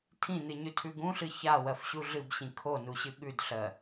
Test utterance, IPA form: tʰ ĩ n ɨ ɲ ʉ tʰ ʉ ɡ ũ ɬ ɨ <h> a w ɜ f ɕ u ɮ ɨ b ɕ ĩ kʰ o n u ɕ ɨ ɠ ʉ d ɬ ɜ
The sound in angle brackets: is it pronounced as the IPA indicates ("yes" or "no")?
no